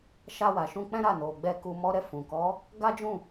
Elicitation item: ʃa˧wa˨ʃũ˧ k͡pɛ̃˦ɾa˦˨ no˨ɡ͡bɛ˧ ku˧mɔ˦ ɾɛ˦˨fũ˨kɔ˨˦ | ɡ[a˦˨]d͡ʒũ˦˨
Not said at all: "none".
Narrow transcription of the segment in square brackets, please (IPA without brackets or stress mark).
a˦